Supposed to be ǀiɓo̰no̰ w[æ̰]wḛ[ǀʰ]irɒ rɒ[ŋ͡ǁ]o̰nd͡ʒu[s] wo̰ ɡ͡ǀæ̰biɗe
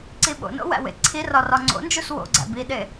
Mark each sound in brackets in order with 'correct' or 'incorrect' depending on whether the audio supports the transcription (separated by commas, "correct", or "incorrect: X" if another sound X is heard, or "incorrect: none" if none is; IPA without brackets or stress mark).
correct, correct, incorrect: ŋ͡ǀ, correct